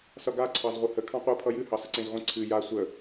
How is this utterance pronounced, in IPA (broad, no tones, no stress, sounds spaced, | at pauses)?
s ʌ ɡ a ǀʰ ɑ z ʁʷ ɨ h ə kʰ ɑ̃ qʷ ɯ pʰ ʌ j ɨ h ɑ s ə ǀ ẽ z ʁʷ ə̃ ǀʰ ɨ j a sʷ ə